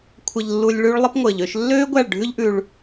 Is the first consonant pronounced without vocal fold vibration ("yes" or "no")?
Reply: yes